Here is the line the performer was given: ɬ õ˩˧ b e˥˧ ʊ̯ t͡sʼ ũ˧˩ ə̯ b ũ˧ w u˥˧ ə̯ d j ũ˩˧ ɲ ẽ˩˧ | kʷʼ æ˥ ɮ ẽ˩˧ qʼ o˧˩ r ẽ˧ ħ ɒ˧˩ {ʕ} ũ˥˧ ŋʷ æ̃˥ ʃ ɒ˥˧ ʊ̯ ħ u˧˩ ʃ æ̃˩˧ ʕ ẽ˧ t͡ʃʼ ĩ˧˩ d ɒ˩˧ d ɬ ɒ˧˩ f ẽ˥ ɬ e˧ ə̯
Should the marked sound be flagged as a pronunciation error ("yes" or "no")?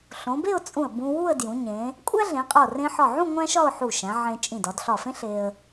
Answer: no